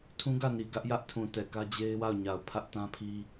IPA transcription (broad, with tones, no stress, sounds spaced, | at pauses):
tʰ ũ˦ ɡ ä˦˨ n i˨ ɡ ä˦ ʔ j ä˦ ʔ tʰ ũ˨ t ɛ˨ k ä˦ d͡ʑ e˦ ɪ̯ w a˦˨ ʊ̯ ɲ a˨ ʊ̯ pʰ ä˦ ʔ t ã˦ pʰ i˦